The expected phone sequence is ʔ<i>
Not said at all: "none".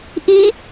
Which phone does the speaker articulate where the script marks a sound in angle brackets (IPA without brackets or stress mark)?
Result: i